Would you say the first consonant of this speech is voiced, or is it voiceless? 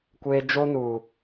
voiceless